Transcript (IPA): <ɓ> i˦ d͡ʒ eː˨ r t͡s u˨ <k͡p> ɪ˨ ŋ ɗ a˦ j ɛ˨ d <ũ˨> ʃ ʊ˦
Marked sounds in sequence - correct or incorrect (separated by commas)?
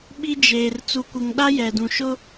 correct, incorrect, correct